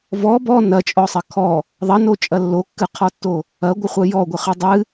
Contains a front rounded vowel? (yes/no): no